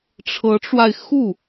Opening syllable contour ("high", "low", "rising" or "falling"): rising